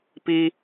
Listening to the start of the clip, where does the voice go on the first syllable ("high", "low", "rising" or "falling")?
low